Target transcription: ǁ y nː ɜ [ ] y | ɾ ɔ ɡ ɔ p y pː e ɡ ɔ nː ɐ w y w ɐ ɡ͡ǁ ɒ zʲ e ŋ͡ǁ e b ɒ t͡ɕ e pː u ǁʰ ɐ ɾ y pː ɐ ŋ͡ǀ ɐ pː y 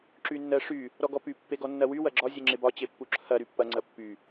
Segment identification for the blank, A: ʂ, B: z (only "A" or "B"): A